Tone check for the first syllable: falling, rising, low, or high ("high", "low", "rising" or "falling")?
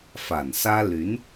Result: low